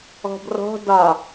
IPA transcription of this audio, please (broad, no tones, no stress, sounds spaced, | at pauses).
ɔ̤ b r ɔ̤ d ɒ